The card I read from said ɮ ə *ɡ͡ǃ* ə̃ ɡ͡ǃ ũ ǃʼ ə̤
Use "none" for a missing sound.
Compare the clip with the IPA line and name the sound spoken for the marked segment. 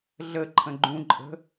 ǃʰ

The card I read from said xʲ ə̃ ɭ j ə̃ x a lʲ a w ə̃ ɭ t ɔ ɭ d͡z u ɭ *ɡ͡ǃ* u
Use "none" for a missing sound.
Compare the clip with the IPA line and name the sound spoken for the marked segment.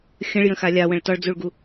ɡ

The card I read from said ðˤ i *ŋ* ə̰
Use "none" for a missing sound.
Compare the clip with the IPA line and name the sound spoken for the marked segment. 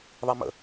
m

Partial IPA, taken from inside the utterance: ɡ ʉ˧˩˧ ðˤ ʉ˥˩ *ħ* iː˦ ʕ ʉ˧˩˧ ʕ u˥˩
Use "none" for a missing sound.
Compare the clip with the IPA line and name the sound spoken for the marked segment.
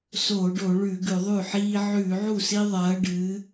ħ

